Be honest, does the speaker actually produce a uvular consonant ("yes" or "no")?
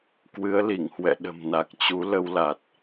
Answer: no